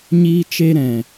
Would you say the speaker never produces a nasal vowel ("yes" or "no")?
no